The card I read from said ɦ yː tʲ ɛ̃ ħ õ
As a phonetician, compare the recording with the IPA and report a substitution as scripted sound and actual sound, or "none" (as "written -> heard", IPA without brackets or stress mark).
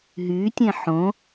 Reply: none